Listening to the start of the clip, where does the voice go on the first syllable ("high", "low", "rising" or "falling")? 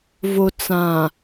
low